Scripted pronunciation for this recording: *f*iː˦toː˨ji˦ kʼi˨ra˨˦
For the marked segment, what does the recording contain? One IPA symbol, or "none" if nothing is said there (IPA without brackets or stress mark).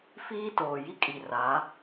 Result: f